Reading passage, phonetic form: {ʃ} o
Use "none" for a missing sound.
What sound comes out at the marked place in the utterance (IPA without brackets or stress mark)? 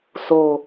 s